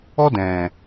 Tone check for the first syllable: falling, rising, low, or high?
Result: high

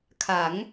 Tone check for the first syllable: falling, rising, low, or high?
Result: rising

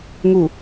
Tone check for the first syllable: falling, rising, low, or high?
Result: low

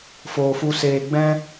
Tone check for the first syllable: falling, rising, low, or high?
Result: low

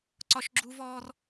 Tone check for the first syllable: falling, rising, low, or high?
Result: high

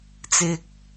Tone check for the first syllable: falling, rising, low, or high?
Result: low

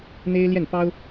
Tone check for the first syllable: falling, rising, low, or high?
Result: high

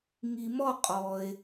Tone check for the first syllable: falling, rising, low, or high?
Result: low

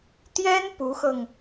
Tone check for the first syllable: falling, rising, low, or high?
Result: high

